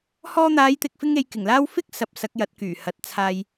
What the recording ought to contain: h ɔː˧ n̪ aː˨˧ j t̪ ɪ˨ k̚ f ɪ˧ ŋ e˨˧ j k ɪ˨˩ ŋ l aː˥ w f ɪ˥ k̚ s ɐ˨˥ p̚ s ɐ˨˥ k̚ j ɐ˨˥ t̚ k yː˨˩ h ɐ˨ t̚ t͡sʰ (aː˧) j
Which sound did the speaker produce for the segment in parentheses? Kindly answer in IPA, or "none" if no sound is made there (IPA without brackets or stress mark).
aː˧